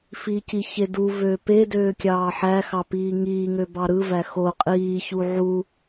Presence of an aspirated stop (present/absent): absent